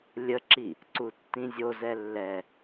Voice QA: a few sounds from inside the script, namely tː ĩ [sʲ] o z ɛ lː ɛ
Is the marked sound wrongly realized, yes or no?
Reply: yes